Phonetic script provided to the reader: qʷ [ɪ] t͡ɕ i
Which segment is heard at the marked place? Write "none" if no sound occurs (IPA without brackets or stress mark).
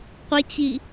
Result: ɪ